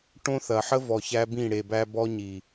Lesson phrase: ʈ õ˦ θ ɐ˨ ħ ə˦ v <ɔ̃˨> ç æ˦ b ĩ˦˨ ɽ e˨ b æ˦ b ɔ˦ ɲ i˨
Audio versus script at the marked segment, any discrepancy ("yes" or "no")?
yes